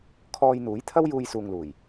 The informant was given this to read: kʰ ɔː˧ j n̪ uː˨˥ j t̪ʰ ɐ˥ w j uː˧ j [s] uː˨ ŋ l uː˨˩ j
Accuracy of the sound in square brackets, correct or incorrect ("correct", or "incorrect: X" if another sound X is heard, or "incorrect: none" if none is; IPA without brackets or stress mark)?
correct